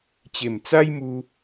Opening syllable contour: low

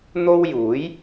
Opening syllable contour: high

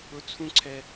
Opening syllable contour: low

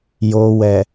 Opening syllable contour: low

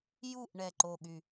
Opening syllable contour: falling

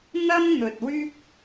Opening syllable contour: high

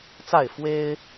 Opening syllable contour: falling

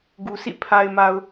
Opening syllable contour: low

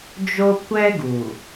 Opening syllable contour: high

